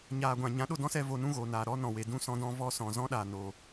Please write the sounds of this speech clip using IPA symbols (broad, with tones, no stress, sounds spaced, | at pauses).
ɲ aː˨ ɡʷ ã˨ ɲ ã˨˦ ɗ o˦˨ d ɔ̃˦ s ɛ˧ v o˧ n ũ˦ ɣ oː˨ n aː˨ ɾ ɔ˦ n ɔ̃˨ w e˨ d ũ˦˨ s ɔ̃˦ d ɔ̃˦ v ɔ˧ s ɔ̃˨ z ɔ̃˦ ɗ aː˨ n oː˨